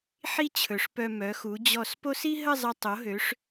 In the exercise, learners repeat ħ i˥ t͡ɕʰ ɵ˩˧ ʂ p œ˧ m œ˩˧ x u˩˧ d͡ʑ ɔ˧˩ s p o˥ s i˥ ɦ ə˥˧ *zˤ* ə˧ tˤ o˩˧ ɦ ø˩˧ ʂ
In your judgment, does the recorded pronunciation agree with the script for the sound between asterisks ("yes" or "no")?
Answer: yes